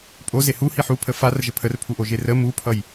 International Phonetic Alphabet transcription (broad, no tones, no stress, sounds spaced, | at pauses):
pʼ o z e h u h i ħ u pʰ ə f a r ʒ ə pʰ ə r pʰ u ʔ o ʒ e r ə m u pʰ ʌ j